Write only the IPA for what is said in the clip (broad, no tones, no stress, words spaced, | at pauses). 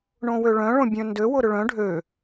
ɳõwøɭœ̃ ɭõbʲœ̃ndø wʊɾʏɭœ̃ ɖʱø